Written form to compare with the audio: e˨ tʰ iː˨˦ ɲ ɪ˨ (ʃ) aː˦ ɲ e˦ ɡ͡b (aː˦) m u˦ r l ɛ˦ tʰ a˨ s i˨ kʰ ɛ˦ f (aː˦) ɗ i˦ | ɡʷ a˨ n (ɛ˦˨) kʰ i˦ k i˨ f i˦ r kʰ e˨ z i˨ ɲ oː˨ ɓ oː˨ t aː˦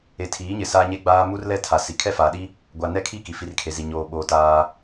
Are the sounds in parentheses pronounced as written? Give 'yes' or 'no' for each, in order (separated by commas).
no, yes, no, no